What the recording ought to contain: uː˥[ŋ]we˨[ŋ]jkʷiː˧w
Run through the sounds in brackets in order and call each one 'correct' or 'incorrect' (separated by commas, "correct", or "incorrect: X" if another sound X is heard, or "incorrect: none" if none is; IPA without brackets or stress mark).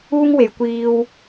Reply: correct, incorrect: none